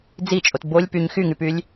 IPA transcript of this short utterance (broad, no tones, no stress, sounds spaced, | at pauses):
d͡z i t͡ʃʼ o t b o lʲ p y ɲ x y ŋ y p y lʲ